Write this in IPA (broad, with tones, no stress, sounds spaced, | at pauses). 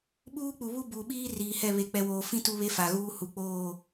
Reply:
ɓ uː˦ k͡p u˨ β u˦ b uː˨ ɓ iː˦ r iː˨ h ɛ˦˨ β e˨ k͡p ɛ˨ w oː˨ f ĩ˦ t u˦ β e˦ f a˨ ɣ uː˦ h u˨ k͡p oː˦˨